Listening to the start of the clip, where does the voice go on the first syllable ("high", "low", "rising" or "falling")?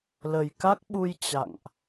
low